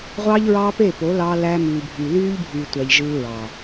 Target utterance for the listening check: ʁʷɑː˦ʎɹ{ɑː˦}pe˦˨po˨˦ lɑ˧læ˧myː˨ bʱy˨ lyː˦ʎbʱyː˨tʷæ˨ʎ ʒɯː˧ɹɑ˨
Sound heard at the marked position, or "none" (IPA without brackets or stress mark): ɑː˦